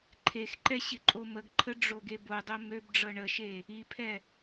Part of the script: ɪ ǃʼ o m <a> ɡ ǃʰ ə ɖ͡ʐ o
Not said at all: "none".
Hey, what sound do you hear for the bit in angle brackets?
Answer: ə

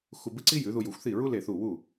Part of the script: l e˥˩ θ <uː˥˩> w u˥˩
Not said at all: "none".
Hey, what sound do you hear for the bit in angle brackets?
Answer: u˥˩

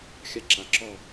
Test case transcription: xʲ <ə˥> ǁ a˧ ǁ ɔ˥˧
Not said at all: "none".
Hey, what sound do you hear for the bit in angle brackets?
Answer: a˥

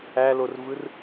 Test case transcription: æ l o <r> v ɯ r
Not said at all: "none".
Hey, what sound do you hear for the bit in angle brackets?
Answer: r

